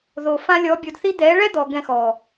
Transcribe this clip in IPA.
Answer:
ð o˨ f ã˧ lʲ ɔ˨˦ bʲ o˧ d θ i˦ d̪ ɛ˨˦ ɭ ɛ˦ d̪ ɔ˨ ɡ ɛ̃˧ x ɔ˨

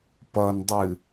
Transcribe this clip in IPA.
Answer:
p ʌ n dˤ ɨ

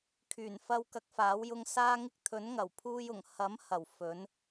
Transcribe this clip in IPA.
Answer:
kʰ yː˨˩ n f ɐ˧ w k ɐ˨˥ k̚ f aː˨˥ w j ʊ˧ ŋ s aː˧ ŋ ɪ˧ k̚ t̪ʰ ɵ˨˥ n ŋ ɐ˨˩ w pʰ uː˧ j ʊ˨˩ ŋ h ɐ˨˥ m h ɐ˨˩ w f ɵ˨˧ n

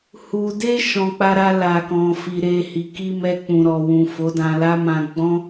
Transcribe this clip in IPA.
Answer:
h u˨ d e˧ ʃ ɔ̃˨ k͡p a˧ ɾ a˧ l a˨ k ɔ̃˨ f i˨ ɾ e˧ h i˨ k i˧ m ɛ˧ k͡p ũ˨ ɾ ɔ˨ w ũ˨ f o˨˦ d ã˧ l a˦ m ã˧ ɡ͡b ɔ̃˦

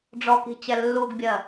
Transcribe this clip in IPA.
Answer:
ɖ͡ʐ ɔ k i̤ t͡ɕ ɛ lː u ɡ bʲ ɜ

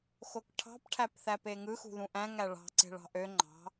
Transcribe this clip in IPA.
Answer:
x o k ʈʰ ɑ̤ p ʈʰ æ p θ æ p e ŋ ɯ x ṳ ð ũ ʔ æ̃ ŋ æ ɭ ɑ̤ ǀ e̤ ɭ ɑ̤ ʔ ø ŋ͡ǃ ɑ̤

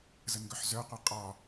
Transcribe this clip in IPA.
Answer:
z ə n ɡ œ ħ z œ qʷ ɛ qʼ ɒ

